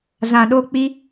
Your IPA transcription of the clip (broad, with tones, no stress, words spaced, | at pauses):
zã˨ɗo˧k͡pi˧